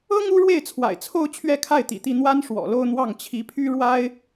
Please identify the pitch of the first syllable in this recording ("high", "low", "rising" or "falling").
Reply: high